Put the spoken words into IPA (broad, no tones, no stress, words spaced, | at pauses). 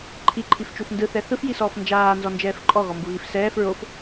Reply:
ǃʰiǃʰift͡ʃuf ndɯθɛ θɯfjisɔːf nd͡ʒaːnzɔnd͡ʒɛːf ǃʼɔɣɔmbuɣif sɛːf ɹof